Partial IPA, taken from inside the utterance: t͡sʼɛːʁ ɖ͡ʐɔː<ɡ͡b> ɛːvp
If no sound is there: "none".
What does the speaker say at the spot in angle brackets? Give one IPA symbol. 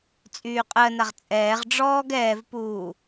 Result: ɡ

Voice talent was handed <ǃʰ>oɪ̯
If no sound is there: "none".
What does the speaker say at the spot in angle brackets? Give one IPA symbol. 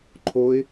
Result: ǃʰ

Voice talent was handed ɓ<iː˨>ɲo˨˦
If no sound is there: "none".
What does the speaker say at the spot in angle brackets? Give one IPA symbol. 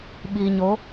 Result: iː˨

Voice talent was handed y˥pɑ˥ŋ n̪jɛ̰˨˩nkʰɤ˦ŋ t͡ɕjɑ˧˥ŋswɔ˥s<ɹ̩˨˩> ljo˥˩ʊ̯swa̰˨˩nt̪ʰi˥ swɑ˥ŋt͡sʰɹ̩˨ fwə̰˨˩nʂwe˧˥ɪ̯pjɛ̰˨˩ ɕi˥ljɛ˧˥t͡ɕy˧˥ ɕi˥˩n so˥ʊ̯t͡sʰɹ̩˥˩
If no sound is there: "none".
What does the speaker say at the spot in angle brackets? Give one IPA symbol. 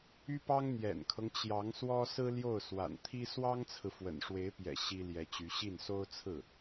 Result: ɹ̩˥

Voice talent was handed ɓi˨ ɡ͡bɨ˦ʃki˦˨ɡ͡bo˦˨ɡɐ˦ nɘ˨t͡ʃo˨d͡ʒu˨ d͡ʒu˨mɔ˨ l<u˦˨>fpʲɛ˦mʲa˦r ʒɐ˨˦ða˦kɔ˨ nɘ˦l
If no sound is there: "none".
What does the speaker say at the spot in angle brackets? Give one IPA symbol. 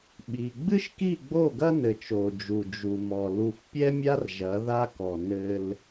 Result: u˨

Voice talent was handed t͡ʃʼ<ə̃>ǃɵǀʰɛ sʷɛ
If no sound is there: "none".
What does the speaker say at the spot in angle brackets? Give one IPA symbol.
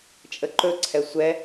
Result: ə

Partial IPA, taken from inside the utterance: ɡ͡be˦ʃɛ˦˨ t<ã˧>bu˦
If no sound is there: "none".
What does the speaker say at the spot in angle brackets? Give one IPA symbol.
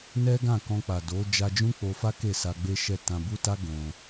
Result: ã˧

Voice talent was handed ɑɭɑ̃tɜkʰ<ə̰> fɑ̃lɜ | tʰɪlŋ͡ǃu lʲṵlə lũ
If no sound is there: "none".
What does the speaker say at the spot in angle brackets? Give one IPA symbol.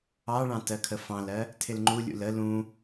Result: ə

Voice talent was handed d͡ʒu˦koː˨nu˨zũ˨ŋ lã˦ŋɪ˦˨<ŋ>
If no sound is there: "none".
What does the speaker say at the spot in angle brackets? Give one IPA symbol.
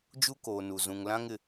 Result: none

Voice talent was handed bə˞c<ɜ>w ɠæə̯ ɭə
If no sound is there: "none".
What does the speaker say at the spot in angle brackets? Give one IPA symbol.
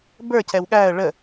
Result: ɛ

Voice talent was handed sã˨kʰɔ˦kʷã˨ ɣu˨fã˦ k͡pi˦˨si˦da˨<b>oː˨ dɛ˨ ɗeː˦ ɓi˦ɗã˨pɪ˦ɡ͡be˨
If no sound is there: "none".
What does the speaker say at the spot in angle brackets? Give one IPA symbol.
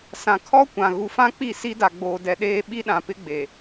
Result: ɡ͡b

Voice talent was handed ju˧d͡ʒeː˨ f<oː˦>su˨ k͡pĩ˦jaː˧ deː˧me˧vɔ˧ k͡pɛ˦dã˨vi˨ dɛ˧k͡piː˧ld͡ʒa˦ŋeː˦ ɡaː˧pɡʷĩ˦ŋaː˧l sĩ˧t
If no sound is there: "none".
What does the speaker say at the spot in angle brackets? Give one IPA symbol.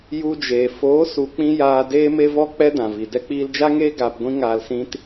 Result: oː˨˦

